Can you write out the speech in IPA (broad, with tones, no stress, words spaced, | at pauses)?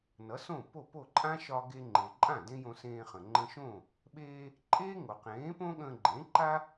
nʌ˩˥sõ˥˩po˥˩po˥˩ ǃʼã˥ ʃɒ˧ɡe˧ŋ͡ǃe˩ǃʼã˥˩ dẽ˥jõ˧ sẽː˧χə̃˩ ŋ͡ǃə̃˧ʃõ˥˩ | ɓeː˧ | ǃʼeː˥ŋo˩ qẽː˩˥põ˥ ɠə̃ː˧ɡ͡ǃẽ˩˥ǃa˥